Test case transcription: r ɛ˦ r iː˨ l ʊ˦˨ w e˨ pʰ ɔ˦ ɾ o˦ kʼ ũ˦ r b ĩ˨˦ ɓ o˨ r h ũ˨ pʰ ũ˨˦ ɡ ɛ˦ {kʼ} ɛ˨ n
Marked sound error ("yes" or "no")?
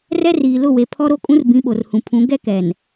yes